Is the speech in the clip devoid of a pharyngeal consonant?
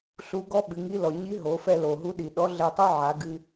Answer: no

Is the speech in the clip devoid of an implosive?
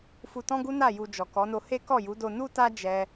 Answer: yes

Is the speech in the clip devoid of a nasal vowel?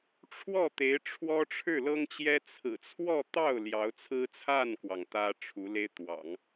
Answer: yes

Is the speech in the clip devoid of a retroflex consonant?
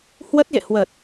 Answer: yes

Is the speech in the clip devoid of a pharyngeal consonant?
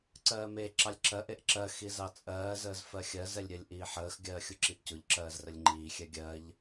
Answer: no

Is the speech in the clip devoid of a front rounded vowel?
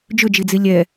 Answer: no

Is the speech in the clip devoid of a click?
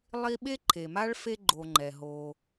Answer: no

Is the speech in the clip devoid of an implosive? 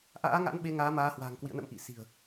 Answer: no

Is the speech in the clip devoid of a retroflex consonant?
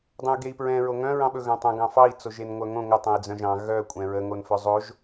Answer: yes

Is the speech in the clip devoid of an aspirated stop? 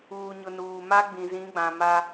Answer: yes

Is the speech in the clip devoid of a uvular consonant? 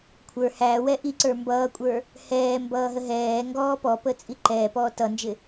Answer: yes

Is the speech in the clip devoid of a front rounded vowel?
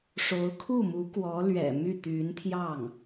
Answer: no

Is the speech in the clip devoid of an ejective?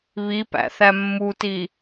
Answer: yes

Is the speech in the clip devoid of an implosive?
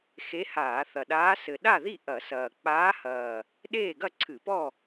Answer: no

